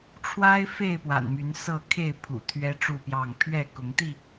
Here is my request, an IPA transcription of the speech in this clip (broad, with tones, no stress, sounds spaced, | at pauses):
ʈ͡ʂʰ w a˦ ɪ̯ f e˥˨ ɪ̯ p w a̰˨˩ n m y˨˦ n s ɤ˥˨ kʰ e˥˨ ɪ̯ pʰ ṵ˨˩ t̪ʰ ɥ ɛ˦ ʈ͡ʂ u˥˨ p j ɑ˥˨ ŋ pʰ ɥ ɛ˥˨ k ʊ˨˦ ŋ t̪ i˥˨